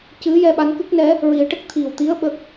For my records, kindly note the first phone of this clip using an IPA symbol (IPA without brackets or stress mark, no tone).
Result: c